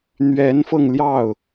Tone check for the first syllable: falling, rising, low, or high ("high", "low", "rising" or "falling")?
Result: rising